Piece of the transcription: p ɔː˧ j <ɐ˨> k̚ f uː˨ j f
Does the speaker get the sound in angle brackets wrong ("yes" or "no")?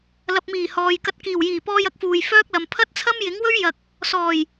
yes